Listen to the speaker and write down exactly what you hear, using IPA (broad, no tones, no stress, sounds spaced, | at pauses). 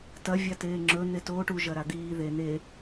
t ɐ vʲ a t eː ŋ͡ǁ ɵ n̪ e t oː ʈ u ʒ ɐ ɾ a d̪ iː ð e n̪ e